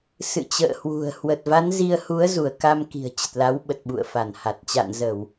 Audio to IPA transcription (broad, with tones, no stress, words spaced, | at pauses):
sɨ̰˧˨t͡ɕə̰ː˧˨hwṳ˨˩ə̯ hwə˨˩t̚va˨˦n zi˧ə̯ hu˨˦ə̯zu˧˩ə̯ ka˧m ki̤˨˩ə̯t͡ɕə˨˩t̚la˨˦wɓə˨˩t̚ ɓṵ˧˨ə̯fa˧˩nha˨˩t̚ t͡ɕa̰˧˨nzəː˧˩˨w